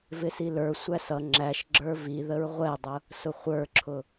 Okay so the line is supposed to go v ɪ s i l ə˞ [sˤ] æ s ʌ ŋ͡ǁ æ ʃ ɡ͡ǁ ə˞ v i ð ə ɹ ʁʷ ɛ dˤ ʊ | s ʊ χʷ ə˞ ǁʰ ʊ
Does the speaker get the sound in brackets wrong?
yes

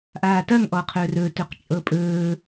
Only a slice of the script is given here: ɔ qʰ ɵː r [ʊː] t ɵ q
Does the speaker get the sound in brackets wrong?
yes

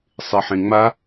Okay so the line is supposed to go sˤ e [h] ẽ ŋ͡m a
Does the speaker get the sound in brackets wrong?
yes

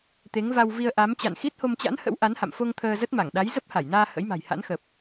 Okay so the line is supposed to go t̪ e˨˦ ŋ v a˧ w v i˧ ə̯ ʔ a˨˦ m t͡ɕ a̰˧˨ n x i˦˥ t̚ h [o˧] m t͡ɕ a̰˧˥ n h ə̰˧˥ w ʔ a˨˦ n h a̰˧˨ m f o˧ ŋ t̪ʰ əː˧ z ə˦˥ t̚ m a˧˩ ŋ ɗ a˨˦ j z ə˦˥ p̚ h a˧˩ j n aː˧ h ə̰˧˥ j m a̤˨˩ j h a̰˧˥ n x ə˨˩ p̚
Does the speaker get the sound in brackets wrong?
no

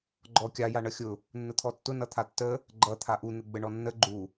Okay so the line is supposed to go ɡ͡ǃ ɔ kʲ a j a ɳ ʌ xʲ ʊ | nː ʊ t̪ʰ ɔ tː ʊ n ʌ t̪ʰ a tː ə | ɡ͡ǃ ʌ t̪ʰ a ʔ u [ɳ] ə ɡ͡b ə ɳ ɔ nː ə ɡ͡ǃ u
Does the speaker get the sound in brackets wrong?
yes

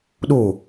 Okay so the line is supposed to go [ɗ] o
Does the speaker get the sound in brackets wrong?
no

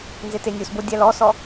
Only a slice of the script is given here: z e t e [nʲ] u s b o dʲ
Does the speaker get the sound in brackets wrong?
no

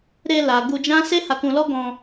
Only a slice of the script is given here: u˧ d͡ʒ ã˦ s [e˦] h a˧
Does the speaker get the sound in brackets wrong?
no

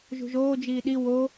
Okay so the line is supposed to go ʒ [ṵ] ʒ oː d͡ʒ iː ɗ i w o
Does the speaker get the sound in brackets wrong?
yes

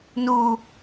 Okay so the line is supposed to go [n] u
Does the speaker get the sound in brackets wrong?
no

